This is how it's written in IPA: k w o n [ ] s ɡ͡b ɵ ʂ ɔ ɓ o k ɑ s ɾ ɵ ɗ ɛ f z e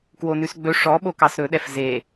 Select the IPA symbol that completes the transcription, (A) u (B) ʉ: B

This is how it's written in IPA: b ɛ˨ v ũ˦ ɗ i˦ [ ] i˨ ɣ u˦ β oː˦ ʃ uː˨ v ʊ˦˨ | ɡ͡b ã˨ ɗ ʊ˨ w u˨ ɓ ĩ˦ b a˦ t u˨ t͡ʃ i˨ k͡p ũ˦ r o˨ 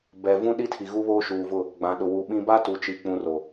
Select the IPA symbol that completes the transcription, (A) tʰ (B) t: A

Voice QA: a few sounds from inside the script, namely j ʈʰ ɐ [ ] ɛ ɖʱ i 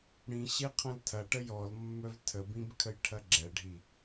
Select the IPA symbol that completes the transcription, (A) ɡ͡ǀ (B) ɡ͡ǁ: B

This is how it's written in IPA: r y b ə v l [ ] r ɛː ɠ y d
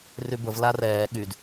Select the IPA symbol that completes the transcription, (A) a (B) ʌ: A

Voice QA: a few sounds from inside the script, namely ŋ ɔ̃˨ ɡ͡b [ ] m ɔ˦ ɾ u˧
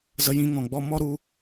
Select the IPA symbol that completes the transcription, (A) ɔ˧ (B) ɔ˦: B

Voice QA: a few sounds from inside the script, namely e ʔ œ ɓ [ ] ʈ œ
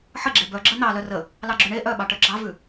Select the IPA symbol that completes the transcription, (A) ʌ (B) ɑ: B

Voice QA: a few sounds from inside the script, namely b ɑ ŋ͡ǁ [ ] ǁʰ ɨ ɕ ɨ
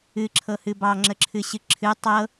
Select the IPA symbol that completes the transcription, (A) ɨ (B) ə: B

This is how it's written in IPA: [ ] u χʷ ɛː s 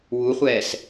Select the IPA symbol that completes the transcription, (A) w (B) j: A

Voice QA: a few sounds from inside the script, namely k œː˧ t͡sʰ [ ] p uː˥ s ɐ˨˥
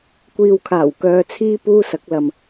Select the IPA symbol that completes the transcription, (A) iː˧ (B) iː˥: B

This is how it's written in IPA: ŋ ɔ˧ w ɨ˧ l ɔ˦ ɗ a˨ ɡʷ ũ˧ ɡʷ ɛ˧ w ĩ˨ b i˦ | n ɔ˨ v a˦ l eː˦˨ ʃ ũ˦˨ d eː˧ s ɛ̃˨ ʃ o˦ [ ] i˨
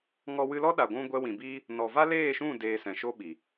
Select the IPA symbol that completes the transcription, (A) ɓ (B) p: A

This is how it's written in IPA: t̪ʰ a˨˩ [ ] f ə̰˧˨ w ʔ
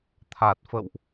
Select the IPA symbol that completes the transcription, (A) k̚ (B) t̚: B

